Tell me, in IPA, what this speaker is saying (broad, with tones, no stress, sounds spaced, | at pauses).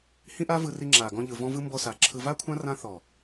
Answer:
h ĩ˦ ʔ a˦ v ɯ˧ r i˧ ŋ͡ǁ aː˨ ɡ ɔ̃˧ ʎ ɯ˨ v ɔ̃˧ v ɯ˧ m b ɔ˧ s a˨˦ ǁʰ ɯ˧ v a˦ kʷʰ ã˦ r ã˦ θ ɔ˨